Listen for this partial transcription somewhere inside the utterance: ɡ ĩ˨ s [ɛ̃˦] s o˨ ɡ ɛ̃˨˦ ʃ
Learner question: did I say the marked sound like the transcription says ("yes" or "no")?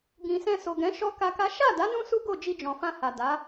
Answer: no